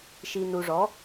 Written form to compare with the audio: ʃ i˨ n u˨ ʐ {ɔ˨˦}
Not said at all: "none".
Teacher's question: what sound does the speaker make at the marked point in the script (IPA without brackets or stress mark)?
ɔ˨˦